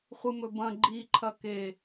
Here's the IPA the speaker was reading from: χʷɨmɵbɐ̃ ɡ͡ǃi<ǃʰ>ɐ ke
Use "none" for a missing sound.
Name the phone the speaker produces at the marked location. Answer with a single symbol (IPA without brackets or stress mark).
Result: ǃʰ